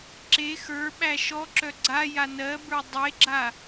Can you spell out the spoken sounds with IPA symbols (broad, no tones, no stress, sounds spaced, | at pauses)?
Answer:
ǁ e x ə˞ ɓ æ ʃ ɔ ǁ œ ɡ͡ǀ a j a n ɜ b ə˞ dˤ e ɡ͡ǁ a